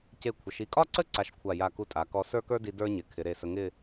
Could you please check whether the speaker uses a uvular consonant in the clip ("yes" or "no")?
no